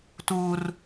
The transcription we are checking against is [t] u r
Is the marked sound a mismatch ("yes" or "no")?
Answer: no